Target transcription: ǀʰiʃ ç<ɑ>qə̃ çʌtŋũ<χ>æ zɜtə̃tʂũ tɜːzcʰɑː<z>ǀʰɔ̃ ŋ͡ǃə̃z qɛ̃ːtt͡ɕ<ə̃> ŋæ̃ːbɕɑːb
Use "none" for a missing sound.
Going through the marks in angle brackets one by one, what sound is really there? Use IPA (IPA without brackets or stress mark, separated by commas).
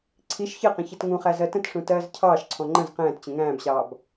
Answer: ə, χ, ʃ, ə̃